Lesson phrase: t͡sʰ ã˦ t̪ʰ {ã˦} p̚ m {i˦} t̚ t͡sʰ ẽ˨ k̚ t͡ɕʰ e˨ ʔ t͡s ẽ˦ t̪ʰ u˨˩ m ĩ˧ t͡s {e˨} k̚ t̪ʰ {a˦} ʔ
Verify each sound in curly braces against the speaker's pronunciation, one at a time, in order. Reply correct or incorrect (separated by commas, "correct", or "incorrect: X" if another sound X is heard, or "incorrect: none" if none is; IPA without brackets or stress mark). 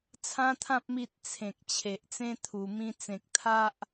correct, correct, incorrect: ẽ˨, correct